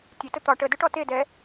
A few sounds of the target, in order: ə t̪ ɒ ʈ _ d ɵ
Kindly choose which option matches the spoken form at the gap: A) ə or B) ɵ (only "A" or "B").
A